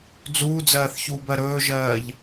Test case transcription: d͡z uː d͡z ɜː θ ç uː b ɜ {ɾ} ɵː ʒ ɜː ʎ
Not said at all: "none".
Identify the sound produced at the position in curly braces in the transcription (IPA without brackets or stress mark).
ɾ